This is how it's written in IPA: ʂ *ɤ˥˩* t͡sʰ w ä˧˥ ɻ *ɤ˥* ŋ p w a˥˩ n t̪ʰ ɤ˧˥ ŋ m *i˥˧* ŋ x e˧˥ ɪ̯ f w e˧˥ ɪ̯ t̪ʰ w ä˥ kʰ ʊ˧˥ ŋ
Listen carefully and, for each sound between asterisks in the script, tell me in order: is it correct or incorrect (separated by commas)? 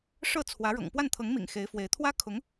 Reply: correct, incorrect, incorrect